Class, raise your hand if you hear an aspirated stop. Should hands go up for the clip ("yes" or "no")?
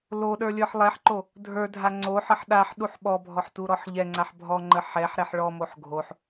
no